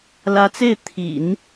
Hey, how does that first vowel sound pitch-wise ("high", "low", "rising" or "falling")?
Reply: rising